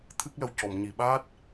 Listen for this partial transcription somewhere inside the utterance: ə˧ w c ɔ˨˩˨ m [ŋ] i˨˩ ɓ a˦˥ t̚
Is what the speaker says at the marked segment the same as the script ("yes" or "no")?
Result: no